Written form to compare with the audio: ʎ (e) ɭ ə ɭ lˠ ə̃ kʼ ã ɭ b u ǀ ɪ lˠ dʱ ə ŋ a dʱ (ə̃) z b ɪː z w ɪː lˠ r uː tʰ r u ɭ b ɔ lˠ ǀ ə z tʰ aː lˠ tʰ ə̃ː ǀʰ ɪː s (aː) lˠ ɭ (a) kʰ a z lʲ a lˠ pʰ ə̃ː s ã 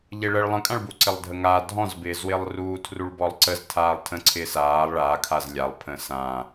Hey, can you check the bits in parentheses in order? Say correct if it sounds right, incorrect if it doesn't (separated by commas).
correct, incorrect, correct, incorrect